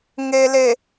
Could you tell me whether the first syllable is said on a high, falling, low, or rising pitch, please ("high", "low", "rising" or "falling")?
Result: low